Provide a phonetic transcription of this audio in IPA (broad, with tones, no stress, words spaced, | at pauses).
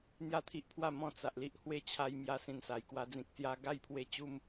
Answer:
n̪ja˦t̪ʰi˦ʔpʰwa˥˧ mɔ̃˥˧t͡sa˨ʔ li˦ʔhwe˦t͡ɕʰa˧jmja˧ sĩ˧nsa˨˩jkwa˧ d͡zĩ˨k̚sja˧ ɡa˦jpʰwe˧ t͡ɕu˧m